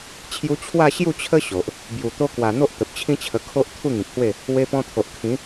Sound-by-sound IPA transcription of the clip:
t͡ɕʰju˧t͡ɕʰwa˥˧ ɕju˥˧t͡ɕʰə˦ ɕo˨ʔ | bju˨˩ t̪o˧kwa˨˩ n̪o˦ʔ t̪ə˨p̚t͡ɕʰĩ˦t͡ɕʰə˧ kʰo˦ʔ t̪ʰu˥˧ŋĩ˨k̚hwe˥˧ | we˧pɔ̃˧t̪ʰo˨ʔ kʰĩ˨˦

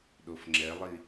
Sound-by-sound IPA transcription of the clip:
ɗofŋ͡ǁɛlˠi

